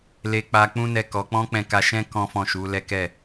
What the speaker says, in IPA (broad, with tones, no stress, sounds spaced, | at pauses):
l e˧ k͡p a˧ k͡p ũ˦ n ɛ˦˨ k ɔ˨˦ k͡p ɔ̃˦ k͡p ɛ̃˧ k a˧ ʃ ɛ̃˦ k ɔ̃˦ f ɔ̃˦˨ ʃ u˨˦ l ɛ˦ k ɛ˦˨